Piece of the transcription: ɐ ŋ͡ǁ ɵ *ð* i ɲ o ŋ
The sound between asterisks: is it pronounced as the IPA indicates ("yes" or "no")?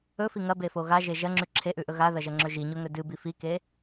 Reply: no